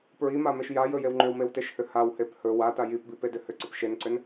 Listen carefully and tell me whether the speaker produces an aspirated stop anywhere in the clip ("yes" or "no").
no